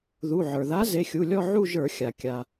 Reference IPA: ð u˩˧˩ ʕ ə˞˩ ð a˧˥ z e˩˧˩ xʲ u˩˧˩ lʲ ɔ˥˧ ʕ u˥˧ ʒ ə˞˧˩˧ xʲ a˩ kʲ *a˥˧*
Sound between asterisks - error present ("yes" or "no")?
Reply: yes